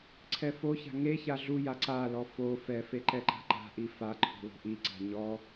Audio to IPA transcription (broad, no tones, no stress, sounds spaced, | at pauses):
ǀʰ ɛ f o ç a̤ ŋ e ç a ɮ u j a ǀ a l ɔ f o f ɛ f e ǃ ɛ ǃ a̤ ǃ a̤ ʔ i f a ǃʰ o̤ l o̤ ʔ i ǀ a̤ ɲ ɔ